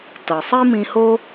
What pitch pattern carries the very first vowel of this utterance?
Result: low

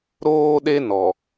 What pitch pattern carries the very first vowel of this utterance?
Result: high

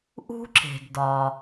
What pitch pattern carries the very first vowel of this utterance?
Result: high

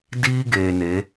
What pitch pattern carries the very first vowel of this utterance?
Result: high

